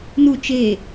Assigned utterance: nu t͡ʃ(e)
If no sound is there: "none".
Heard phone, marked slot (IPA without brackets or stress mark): e